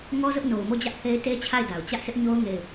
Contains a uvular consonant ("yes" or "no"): no